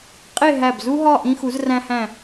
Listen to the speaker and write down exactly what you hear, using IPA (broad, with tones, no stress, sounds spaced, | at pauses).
qʼ e˥˧ ɦ æ˧˩ b z u˥ ɦ ɒ˥˧ ʔ ĩ˧ x u˩˧ z r æ̃˧ h æ̃˧˩